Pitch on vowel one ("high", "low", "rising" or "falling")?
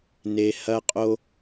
low